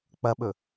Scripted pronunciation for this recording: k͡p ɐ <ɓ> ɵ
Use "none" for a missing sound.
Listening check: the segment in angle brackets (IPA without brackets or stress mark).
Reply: ɓ